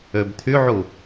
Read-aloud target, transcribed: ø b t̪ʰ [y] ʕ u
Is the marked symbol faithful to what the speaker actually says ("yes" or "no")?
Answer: yes